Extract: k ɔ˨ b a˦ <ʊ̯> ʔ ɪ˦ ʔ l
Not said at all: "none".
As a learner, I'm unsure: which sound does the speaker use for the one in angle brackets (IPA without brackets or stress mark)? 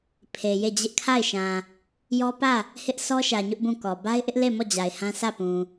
ɪ̯